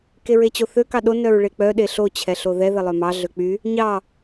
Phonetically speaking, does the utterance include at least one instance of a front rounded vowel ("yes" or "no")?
yes